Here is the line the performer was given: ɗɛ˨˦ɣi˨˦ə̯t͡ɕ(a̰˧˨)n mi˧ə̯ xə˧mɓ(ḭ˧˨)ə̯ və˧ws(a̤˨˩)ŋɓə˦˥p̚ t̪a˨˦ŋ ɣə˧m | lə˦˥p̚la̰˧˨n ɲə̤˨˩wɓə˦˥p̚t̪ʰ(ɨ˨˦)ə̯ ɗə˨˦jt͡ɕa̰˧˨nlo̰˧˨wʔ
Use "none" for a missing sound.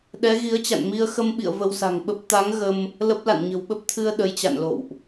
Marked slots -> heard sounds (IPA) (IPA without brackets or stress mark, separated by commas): a̰˧˨, ḭ˧˨, a̤˨˩, ɨ˧